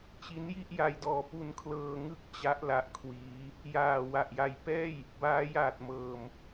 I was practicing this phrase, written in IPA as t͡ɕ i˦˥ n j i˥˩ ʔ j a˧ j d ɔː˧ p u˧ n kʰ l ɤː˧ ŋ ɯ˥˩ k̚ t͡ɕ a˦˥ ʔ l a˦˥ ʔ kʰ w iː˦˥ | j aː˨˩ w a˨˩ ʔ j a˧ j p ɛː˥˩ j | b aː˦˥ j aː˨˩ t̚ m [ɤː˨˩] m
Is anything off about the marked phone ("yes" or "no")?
no